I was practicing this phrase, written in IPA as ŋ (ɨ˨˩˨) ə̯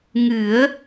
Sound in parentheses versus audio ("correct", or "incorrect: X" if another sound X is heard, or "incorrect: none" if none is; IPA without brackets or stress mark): incorrect: ɨ˨˩˦